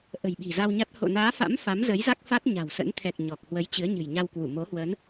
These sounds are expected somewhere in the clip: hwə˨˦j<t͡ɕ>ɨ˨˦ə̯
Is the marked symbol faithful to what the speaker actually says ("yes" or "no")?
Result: yes